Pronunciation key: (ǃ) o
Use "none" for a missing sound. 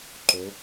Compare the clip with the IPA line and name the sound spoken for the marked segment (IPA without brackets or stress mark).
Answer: ǃ